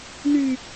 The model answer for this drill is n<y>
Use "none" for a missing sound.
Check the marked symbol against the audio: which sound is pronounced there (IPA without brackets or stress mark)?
y